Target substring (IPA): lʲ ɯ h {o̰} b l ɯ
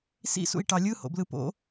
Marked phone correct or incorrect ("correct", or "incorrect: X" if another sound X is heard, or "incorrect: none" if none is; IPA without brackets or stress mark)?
correct